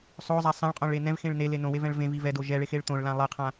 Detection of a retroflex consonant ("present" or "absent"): present